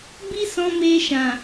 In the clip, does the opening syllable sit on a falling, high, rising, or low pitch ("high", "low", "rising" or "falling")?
high